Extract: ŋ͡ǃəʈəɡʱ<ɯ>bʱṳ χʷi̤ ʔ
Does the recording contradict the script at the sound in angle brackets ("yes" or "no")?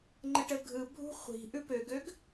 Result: no